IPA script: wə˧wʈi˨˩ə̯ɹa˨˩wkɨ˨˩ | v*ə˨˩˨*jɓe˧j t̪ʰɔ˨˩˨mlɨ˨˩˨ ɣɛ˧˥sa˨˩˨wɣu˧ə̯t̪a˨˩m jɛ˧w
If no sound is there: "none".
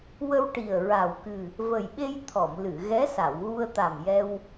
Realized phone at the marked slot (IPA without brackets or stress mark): ə˨˩